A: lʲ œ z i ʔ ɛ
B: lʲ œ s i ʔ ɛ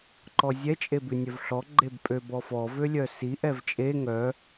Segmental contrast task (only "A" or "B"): B